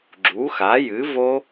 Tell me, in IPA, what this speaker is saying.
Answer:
ɡ͡ǁ u˩˥ x a˩˥ j ɨ˩˥ v o˦˥

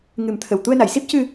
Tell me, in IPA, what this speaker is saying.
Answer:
ŋ ɨ˨˩˦ m t̪ʰ ə˨˩ w t̪ u˧ ə̯ n a˨˩˨ j s i˦˥ p̚ c ɨ˧

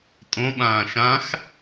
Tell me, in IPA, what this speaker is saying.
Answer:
tʼ õ ɓ ãː ʃ ã x

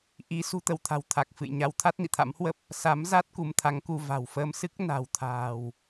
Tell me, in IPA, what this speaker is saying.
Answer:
ʔ i˨˦ s ṳ˨˩ t̪ ə˧˩ w t̪ʰ a̤˨˩ w t̪ʰ a˨˩ k̚ f ɨ̰˧˨ j ɲ a˨˦ w t̪ʰ a˦˥ t̚ n ḭ˧˨ t̪ʰ a̰˧˥ m h w ə˦˥ p̚ | s a˨˦ m z a˦˥ t̚ k u˨˦ m t̪ʰ a˨˦ ŋ k u˧ v a̤˨˩ w f əː˧ m s ɨ˦˥ k̚ n a̤˨˩ w t̪ʰ a̤ː˨˩ w

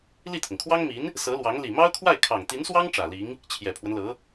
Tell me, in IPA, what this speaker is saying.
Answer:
l i˥˩ t̪ʰ ʊ˩ ŋ kʰ w ɑ˥ ŋ m i˧˥ n | s ɤ˧˥ l w ɑ˧˥ ŋ l i˨˩ m ɑ˥ ʊ̯ kʰ w a˥˩ ɪ̯ kʰ ɑ˨˩ ŋ t̪ i˧˥ n s w ɑ˥ ŋ ʈ͡ʂ ä˨˩ l i˧˥ ŋ | t͡ɕʰ j ɛ˨˩ pʰ w ə˦ n l ɤ˧˥

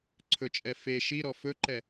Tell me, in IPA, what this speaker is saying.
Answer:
ǀʰ ɵ t͡ʃʼ ɛ f e ʃ i ɾ ɔ f ɵ ǃ ɛ

